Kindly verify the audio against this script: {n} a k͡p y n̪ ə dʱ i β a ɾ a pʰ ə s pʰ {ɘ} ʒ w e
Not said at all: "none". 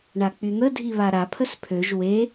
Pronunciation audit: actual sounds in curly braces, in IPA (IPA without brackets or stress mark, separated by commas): ɳ, ø